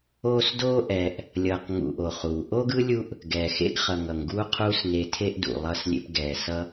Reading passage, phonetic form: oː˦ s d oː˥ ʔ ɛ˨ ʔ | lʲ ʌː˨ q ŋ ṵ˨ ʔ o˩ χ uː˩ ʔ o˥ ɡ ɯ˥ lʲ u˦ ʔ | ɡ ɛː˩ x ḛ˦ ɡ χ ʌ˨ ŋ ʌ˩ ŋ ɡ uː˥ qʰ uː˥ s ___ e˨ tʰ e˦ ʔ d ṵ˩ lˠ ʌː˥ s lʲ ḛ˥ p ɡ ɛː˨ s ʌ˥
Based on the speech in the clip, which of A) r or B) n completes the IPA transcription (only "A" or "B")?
B